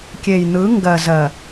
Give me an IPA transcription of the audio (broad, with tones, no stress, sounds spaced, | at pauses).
kʲ e˨ j n̪ ɯ˨˦ ŋ ɡ ɜ˨ z ɜ˨